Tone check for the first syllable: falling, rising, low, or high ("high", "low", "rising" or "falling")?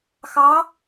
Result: rising